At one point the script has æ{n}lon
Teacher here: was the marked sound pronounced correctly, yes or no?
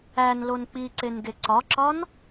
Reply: yes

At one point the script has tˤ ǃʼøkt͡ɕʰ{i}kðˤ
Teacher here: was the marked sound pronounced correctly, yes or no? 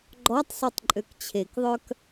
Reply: no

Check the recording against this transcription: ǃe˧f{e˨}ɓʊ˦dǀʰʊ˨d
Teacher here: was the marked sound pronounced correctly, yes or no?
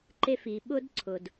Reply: no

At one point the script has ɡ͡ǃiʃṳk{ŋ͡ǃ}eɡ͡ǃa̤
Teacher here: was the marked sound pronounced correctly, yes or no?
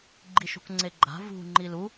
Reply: no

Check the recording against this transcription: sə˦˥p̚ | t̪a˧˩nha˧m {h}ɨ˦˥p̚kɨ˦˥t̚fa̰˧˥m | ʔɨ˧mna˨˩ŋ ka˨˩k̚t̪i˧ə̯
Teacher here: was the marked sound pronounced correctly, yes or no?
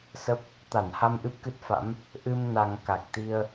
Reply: no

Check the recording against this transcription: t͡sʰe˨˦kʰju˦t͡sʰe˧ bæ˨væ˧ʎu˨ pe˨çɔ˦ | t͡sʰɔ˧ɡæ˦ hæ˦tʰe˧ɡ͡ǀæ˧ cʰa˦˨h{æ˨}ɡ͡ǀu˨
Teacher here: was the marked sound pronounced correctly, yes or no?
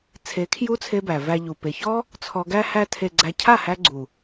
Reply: no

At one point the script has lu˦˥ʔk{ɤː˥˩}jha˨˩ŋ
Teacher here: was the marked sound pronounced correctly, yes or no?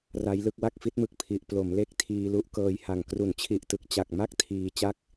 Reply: no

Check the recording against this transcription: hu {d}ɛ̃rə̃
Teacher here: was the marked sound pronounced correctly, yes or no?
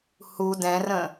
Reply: yes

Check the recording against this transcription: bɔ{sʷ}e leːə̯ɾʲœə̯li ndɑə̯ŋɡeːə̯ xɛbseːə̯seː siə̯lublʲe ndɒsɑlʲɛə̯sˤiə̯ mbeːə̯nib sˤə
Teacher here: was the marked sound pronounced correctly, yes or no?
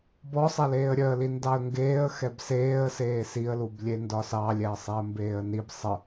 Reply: no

